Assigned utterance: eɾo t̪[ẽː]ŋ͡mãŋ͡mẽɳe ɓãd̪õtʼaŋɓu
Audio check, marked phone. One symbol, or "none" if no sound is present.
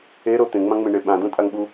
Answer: ẽ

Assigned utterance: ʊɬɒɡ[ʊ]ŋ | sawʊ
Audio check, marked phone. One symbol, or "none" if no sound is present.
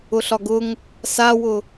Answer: ʊ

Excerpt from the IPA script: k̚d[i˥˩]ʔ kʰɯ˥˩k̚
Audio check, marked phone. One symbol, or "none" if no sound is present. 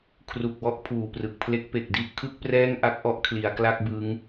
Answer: i˥˩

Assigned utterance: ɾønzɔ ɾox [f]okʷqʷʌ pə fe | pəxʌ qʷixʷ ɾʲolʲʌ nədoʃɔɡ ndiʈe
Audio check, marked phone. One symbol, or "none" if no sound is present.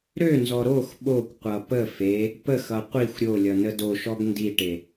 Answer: ɓ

